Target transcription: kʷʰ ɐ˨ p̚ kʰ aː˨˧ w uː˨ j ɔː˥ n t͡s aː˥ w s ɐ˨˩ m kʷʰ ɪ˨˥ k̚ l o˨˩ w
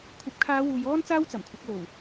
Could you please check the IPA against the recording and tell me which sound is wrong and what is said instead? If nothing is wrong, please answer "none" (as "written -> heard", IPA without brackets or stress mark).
s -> t͡s